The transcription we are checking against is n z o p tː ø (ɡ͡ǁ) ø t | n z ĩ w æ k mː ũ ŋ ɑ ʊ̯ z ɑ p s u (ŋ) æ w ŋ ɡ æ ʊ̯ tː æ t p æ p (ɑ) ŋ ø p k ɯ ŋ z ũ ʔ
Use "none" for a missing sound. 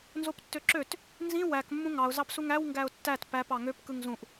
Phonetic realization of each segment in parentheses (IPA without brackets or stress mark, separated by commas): ǁ, ŋ, ɑ